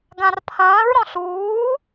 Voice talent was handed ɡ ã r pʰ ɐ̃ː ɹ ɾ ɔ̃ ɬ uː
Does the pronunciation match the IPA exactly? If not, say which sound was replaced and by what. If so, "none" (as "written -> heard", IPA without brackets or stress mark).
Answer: none